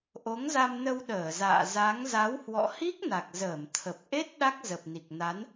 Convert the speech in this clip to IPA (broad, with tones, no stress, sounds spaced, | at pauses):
ʔ o˨˦ ŋ z a˧ m n ə˧ w ɗ əː˧˩ z a̰ː˧˨ z a˨˦ ŋ z a˨˦ w h w ɔ̰˧˨ h i˦˥ k̚ n a˨˩ k̚ z əː˧˩ m t̪ʰ ə˨˩ p̚ ʔ e˦˥ t̚ ɗ a˦˥ k̚ z ə˨˩ p̚ n i˨˩ k̚ n a˨˦ n